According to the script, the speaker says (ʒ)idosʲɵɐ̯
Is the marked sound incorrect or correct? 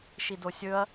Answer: incorrect